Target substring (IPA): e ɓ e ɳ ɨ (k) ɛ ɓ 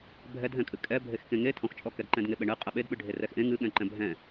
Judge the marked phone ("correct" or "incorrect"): incorrect